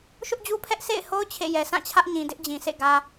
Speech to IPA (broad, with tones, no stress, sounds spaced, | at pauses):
ʃ ʊ˦ ʔ d͡ʑ u˦ pʰ ɛ˦ ʔ s ḛ˦˨ ɪ̯ h o˦ ʊ̯ t͡ɕʰ ḛ˦˨ j ɛ˨ s ã˦˨ t͡ɕʰ ä˦ ʔ ɲ ĩ˨ d ɪ˦ ʔ d͡ʑ ĩ˨ sʰ ḛ˦˨ ɡ ä˨